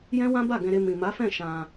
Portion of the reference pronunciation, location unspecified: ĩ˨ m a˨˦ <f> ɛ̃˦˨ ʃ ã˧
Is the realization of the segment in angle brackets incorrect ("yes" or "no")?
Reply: no